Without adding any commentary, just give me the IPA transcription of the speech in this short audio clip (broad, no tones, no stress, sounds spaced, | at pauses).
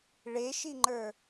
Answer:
ɭ e ʃ i ŋ͡ǃ ə˞